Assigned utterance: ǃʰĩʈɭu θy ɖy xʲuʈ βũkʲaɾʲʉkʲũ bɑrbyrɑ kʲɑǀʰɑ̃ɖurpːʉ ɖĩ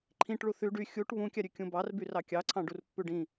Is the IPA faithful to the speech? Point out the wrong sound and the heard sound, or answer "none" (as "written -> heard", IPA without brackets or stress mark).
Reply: none